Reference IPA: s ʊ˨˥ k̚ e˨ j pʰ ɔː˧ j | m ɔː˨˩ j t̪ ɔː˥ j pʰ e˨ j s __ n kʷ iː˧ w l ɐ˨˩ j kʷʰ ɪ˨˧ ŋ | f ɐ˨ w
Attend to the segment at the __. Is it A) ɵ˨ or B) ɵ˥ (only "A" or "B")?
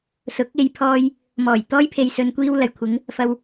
A